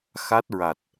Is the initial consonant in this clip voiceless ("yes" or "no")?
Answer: yes